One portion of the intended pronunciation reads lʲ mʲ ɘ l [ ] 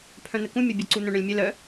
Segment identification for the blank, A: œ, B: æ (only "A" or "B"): A